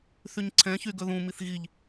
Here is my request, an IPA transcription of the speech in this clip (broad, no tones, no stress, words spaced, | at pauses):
θyɲǀʰɛ̃çy ɡɵðũmiθ ɣiʎ